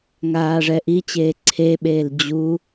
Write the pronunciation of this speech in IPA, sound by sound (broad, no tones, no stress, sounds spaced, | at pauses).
ŋ aː ʐ ɛ ʔ i t͡ɕ eː ǀʰ e ɓ eː l d͡ʑ u